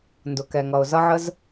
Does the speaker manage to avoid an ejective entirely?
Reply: yes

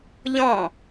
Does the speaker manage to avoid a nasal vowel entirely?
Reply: no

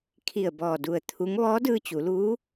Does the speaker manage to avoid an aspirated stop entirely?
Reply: no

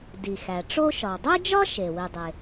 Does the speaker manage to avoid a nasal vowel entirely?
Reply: yes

